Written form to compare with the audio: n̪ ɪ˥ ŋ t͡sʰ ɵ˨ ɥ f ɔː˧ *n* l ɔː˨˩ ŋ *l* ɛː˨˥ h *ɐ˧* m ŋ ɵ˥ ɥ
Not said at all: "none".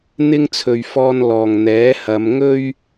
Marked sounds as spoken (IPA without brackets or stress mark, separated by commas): n, n̪, ɐ˨˧